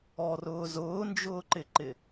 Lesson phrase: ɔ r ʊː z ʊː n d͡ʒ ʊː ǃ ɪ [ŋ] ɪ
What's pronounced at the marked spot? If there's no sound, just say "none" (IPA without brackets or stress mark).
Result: ǃ